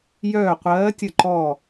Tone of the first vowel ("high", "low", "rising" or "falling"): falling